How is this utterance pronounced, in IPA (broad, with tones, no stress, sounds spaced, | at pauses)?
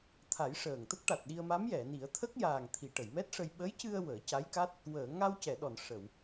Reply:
t̪ʰ a˨˩˦ j ʂ əː˨˩ ŋ t̪ ə˦˥ k̚ ʈ a˨˩ t̚ ɗ i˧ ə̯ m a˧˥ m j ɛ˨˩˨ n i˨˩˦ ə̯ t̪ʰ ə˦˥ k̚ j aː˨˩ ŋ t̪ʰ i˨˩˨ ʈ ə˨˩˨ j m ɛ˦˥ t̚ ʂ ə˧ j ɓ ə˧˥ j c ɨ˧ ə̯ w əː˨˩˦ c a˧˥ j k a˦˥ t̚ | w əː˨˩˨ ŋ a˧ w c ɛ˨˩˨ ɗ ɔ˨˩˨ n ʂ ə˨˩˨ w